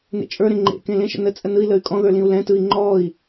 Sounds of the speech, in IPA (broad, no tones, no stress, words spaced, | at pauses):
nḛt͡ʃʼə˞ɾẽ ŋ͡ǃḛkẽ lẽʃə̰ nət͡sʼə nɯi̯ləy̯ kʼɔ̃ðə˞ lĩu̯lɛ̃tɯi̯ ŋ͡ǃɔi̯